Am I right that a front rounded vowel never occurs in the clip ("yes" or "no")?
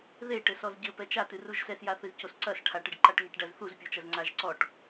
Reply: yes